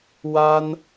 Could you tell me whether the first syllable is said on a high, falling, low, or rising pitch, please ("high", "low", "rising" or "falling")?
high